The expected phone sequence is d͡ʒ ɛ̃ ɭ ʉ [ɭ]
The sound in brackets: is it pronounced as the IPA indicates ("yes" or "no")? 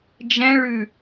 no